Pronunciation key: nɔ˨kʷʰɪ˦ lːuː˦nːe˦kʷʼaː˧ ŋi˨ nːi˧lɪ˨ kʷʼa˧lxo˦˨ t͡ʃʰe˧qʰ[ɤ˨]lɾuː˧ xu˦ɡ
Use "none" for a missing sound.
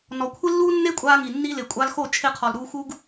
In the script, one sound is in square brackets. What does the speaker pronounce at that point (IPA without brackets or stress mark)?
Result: ɔ˨